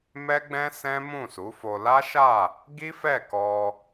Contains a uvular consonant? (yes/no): no